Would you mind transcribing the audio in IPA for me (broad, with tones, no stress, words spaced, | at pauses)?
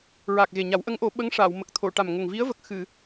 ɹa˨˩k̚ɣe˨˩ɲa˨˩˦w ʔə˧˥ŋʔo˨˩˦ ɓə˧˥ŋʂaː˨˩˨w mə˨˩k̚t̪ʰo˨˩˨ ʈa˨˩mŋə˨˩ŋ vi˧˥ə̯və˨˩k̚ xɨ˨˩˨